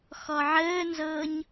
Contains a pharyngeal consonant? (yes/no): yes